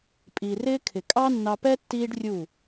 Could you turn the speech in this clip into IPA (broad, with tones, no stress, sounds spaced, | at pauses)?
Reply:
pʼ i˨ r ɪː˦ kʰ ɪ˨ kʼ ɑ˦ nː ɑ˧ p ɛ˦ tː iː˦ ɖ rʲ u˦˨